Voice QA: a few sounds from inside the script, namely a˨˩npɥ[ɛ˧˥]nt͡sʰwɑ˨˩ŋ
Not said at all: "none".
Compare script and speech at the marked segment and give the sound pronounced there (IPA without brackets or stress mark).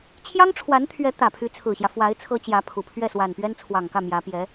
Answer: ɛ˥